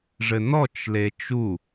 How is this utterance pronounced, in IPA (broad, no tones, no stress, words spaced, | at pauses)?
ʐɘnɔt͡ʃ let͡ʃu